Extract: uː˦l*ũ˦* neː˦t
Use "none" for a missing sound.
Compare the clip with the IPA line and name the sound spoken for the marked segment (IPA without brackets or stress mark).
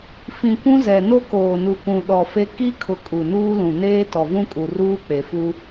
ũ˨